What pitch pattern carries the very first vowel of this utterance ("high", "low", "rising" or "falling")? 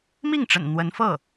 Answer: falling